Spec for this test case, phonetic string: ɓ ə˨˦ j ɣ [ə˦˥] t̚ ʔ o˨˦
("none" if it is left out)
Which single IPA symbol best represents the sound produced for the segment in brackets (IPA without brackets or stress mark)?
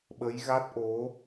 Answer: a˦˥